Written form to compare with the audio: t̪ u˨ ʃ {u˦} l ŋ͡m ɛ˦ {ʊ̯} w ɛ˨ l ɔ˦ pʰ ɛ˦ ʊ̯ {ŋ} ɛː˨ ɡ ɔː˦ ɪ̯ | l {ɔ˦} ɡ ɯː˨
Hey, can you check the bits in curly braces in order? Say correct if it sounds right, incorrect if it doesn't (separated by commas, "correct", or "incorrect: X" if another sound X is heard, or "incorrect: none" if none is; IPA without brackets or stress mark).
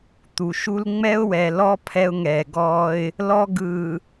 correct, correct, correct, correct